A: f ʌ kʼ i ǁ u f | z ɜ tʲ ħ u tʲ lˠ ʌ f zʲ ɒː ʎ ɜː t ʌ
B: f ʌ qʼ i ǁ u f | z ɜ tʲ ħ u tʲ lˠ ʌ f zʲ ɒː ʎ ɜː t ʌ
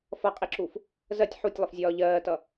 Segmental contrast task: B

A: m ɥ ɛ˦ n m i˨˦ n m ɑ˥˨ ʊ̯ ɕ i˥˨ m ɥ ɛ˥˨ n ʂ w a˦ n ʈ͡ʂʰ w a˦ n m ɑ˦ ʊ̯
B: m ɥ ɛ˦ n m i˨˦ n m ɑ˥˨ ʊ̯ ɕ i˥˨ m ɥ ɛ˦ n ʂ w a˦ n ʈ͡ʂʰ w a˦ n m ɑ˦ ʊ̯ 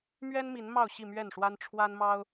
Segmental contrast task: A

